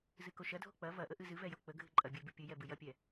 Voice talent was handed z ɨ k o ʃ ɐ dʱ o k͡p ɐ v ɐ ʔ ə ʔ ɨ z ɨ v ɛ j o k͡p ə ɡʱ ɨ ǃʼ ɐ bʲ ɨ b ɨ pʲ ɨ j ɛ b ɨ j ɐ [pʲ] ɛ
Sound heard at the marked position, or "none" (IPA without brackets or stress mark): pʲ